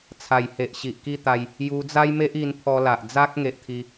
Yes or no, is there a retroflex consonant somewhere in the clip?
no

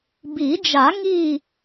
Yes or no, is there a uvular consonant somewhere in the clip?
no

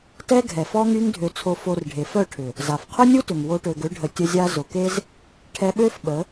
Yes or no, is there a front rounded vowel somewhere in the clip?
yes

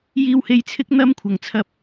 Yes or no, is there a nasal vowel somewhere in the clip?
no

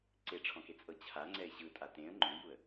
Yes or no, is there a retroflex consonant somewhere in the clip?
yes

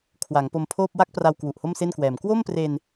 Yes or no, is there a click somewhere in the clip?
no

